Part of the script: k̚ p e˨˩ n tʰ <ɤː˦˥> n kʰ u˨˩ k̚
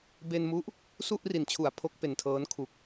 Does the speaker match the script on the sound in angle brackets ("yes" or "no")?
yes